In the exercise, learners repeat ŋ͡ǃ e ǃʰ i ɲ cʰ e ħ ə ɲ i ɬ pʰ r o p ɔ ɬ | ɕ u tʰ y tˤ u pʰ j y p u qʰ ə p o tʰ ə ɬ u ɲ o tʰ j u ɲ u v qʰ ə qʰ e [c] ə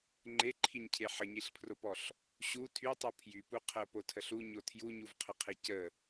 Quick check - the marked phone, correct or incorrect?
correct